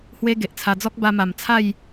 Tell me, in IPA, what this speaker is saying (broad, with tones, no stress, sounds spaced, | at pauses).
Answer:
h w e˦ ɡ e˨ ʔ t͡sʰ a˧ d͡z ɔ˦ k̚ b a˧ m a˨˩ m t͡sʰ a˥˧ j